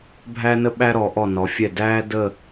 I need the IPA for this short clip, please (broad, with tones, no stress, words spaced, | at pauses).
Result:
bʱæ˥nə˥ɓæ˥ ɾɔ˩˧ʔɔ˧˩ nɔ˩˧fʲɛ˧˩ dæː˥ də˥˧